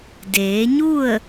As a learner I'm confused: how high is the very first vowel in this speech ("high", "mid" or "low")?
mid